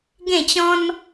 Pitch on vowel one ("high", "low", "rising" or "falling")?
falling